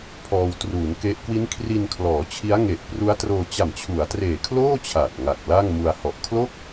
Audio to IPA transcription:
pʰɔː˧wtruː˩˦n ke˦˥ʔ kwi˦˥nkʰri˧nkʰlɔː˩˦ t͡ɕʰi˦˥a̯ŋe˨˩ʔpru˦˥a̯troː˧ t͡ɕa˨˩mt͡ɕʰu˩˦a̯treː˨˩kʰloː˥˩ t͡ɕʰa˨˩t̚ŋa˨˩k̚ la˥˩ŋmu˧a̯hɔ˨˩ʔ kʰlo˥˩k̚

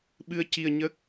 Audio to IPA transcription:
ɓɨ˧ə̯ci˧ə̯ ɲə˦˥k̚

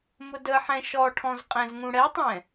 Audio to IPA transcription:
mʊdəħɛ̃ ʃɔʈʰɔ̃zqʼɛ̃z ŋũɽɛtˤɛ̃

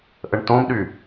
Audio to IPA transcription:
ʔəɳtõmɗy

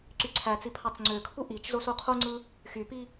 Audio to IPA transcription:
ǀyǀʰæt͡si pʰɑt͡sŋ͡ǀøkʰu ʔit͡ʃ zosuqʰuŋ͡ǀɯ | xypi

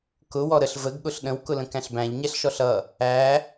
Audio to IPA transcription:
kʊ wɔɾəɬ vəɡ ɠʊɬɗə̃w kʊlə̃kæ̃ɬbæ̃ʎ ɲɛɬʃɔɬʌ | æ

